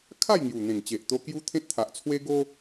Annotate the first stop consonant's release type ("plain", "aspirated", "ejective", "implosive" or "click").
aspirated